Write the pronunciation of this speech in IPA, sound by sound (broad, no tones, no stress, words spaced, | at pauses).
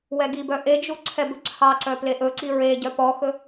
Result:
wɛɡibœ ʔed͡ʒu ǀʰɛbɵǀʰɑǀœ pleʔɵǀi ɹe ɟœpɔxɵ